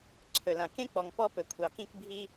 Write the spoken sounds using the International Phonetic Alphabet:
ǀʰ ɵ˨ l ã˨ k ẽ˦ k͡p ɔ˨ ŋ p ɔ˦ p ɵ˨ kʷʰ ɑ˨ k ĩ˦ k bʱ i˦

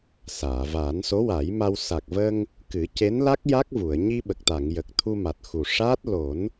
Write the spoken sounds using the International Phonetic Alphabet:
s aː˨˩˨ v aː˨˩˦ n s o˧˥ w a˨˩˦ j m a˧ w s a˨˩ k̚ v ə˧ ŋ | k ɨ˨˩˦ c e˧˥ n l a˦˥ k̚ j a˦˥ k̚ v u˨˩˨ ə̯ ɲ i˧ ɓ ə˨˩ k̚ t̪ a˨˩˨ ŋ j ə˨˩ k̚ t̪ʰ u˧ m a˨˩ t̚ x u˨˩ ʂ a˦˥ t̚ l o˨˩˦ n

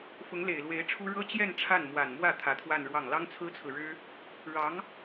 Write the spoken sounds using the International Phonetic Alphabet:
f ʊ˧˥ ŋ l e˨˩ ɪ̯ l w e˧˥ ɪ̯ ʈ͡ʂʰ u˥ ɻ ɤ˥ t͡ɕ j ɛ˥˧ n ʈ͡ʂʰ a˥˩ n m w a˨˩ n m w ä˥˩ t̪ʰ ä˧˥ t̪ʰ w a˥˧ n ɻ w ɑ˥˩ ŋ l ɑ˥ ŋ t͡sʰ ɹ̩˥ t͡sʰ ɹ̩˨ ɻ ɻ̩˥ | ɻ ɑ˧˥ ŋ

